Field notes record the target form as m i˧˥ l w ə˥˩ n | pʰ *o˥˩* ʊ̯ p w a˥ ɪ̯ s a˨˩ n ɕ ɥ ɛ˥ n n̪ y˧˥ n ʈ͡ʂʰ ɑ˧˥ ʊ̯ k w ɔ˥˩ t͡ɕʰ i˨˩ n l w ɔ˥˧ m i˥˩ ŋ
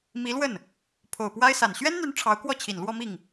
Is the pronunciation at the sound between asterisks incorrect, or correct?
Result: incorrect